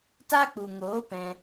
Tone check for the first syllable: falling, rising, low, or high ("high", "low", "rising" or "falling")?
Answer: high